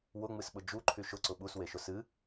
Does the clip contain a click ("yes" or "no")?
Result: yes